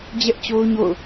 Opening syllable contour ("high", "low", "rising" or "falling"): high